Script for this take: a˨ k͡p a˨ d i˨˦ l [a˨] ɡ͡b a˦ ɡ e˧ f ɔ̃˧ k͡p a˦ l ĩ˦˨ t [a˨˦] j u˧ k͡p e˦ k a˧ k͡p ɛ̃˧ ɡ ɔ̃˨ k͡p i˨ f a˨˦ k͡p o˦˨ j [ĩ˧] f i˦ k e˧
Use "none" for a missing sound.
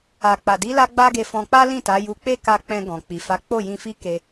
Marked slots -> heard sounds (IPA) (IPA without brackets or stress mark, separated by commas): a˧, a˨˦, ĩ˧